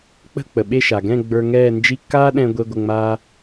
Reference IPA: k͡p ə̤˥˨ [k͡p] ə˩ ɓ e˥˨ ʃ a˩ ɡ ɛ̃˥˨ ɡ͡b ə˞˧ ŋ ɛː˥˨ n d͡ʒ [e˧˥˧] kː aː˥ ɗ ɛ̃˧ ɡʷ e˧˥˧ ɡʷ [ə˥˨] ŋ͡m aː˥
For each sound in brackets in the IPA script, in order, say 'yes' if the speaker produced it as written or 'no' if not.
yes, no, yes

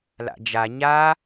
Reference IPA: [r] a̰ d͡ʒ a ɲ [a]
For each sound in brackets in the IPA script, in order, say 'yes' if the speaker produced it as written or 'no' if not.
no, yes

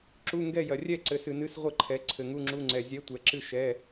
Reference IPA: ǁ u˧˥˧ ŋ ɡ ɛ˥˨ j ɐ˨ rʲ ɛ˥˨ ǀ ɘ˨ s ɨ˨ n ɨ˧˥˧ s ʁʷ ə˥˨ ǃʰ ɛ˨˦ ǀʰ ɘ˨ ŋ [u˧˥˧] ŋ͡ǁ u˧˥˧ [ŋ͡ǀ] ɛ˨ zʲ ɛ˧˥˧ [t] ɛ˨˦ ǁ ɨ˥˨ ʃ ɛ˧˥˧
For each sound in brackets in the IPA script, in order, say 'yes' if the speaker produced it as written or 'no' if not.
yes, yes, no

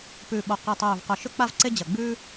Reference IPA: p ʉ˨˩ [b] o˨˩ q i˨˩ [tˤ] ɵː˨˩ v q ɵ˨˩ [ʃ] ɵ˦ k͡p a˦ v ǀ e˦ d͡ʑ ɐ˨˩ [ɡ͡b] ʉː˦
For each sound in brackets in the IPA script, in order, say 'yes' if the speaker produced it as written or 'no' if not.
no, yes, yes, yes

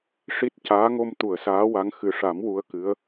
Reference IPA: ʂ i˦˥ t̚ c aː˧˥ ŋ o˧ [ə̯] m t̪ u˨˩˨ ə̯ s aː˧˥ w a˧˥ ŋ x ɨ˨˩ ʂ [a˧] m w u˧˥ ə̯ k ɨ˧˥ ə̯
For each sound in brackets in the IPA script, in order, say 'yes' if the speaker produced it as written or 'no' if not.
no, no

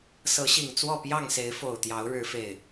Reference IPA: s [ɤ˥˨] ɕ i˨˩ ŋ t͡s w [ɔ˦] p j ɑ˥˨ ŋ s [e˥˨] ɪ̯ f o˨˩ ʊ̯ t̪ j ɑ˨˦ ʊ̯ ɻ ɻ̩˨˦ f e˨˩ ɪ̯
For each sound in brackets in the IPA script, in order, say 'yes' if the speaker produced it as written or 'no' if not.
no, no, no

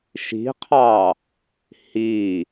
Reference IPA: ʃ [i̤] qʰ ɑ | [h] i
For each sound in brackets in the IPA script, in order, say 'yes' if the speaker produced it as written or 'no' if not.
yes, yes

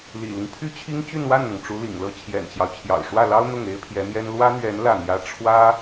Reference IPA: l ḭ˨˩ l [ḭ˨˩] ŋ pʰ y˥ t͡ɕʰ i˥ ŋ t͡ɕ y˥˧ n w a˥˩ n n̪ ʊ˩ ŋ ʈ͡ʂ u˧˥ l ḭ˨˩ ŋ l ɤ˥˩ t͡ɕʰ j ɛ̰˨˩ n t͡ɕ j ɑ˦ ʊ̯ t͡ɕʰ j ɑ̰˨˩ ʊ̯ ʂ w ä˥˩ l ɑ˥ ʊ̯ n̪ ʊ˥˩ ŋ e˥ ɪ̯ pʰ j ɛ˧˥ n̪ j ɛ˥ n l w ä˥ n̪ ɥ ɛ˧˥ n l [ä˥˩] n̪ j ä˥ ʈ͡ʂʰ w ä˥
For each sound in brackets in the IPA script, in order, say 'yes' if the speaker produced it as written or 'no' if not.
no, yes

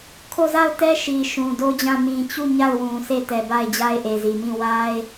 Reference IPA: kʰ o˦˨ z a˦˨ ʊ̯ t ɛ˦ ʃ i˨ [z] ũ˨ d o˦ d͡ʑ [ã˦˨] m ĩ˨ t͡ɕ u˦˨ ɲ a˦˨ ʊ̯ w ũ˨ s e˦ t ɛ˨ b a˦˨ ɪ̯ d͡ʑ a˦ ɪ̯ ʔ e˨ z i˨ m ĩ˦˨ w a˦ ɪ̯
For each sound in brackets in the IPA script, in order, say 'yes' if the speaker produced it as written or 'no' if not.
no, yes

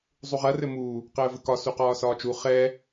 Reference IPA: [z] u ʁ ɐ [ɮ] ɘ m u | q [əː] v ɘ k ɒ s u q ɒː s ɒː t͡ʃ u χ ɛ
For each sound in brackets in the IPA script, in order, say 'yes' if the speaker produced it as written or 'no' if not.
no, no, yes

